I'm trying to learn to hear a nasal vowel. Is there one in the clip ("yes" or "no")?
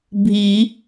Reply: no